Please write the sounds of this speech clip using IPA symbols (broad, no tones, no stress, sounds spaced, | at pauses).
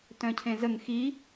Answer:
t œ̃ cʰ ẽ z ə ŋ x i